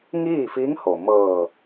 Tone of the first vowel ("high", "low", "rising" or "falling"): falling